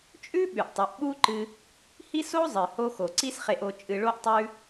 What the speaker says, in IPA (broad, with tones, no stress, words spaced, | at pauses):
t͡ʃʼʉ˦ ɓʉ˨ʔtˤɵ˨˦ʔ ɓu˦ǃɨ˧ | hi˦so˦ zˤɨ˨ho˧ xo˨ǀi˦sχe˧ʔo˧ t͡ʃʼɨ˧ɭo˦ʔtˤʉ˦